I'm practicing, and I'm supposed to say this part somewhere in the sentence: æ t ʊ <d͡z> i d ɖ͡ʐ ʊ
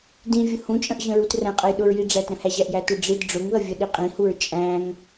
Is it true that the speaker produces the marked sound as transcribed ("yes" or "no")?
no